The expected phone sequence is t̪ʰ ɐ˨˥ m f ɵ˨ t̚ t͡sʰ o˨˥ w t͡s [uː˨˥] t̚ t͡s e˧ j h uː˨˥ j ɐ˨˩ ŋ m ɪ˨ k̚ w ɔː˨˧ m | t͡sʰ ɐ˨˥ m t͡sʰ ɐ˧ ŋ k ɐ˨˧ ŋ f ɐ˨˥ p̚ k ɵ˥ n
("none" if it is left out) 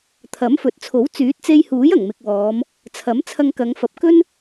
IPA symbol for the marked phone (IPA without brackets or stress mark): yː˨˥